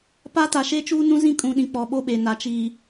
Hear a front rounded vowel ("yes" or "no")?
no